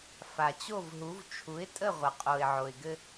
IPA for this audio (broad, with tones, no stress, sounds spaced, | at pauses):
f a˩ t͡ɕ o˥˩ v ɦ u˩˥ v t͡ʃʰ u˩˥ ɪ̯ tʼ ə˥˩ ʁʷ ə˩ qʼ o˩ ɪ̯ ʕ o˩ ɪ̯ ɡ ɘ˧